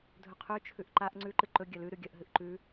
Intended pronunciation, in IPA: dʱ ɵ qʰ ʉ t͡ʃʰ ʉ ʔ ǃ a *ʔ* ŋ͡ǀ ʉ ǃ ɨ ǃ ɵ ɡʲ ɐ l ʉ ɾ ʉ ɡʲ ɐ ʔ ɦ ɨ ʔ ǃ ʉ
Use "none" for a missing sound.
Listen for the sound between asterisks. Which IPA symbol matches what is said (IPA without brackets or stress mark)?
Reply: ʔ